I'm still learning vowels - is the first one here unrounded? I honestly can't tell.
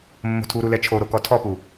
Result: no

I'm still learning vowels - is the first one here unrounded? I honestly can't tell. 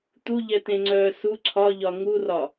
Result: no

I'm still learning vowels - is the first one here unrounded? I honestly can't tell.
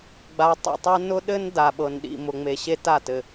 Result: yes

